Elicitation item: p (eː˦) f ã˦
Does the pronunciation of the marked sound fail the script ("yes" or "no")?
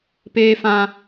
no